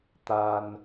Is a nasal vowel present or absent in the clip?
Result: absent